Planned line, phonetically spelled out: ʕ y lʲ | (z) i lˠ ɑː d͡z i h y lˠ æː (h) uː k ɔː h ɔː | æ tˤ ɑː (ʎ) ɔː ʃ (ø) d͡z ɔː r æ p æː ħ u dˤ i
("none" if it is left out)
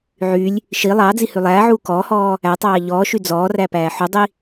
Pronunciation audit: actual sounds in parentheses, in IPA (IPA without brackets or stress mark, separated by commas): ʃ, ʕ, ʎ, y